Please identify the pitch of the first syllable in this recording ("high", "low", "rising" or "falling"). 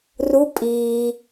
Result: rising